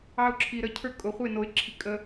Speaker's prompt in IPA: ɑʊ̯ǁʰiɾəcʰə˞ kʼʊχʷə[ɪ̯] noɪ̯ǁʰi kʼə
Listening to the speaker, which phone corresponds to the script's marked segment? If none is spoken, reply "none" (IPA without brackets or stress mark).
ɪ̯